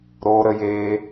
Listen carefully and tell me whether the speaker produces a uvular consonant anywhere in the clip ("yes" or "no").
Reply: no